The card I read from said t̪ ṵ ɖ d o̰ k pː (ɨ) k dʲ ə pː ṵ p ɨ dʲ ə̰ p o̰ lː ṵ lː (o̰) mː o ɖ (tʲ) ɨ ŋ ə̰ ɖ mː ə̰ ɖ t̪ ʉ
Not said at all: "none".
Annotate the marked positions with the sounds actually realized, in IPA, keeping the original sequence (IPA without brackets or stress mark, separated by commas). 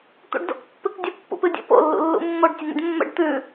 ɨ, ṵ, tʲ